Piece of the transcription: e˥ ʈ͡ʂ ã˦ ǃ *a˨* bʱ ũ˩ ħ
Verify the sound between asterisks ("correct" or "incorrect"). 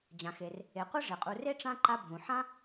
incorrect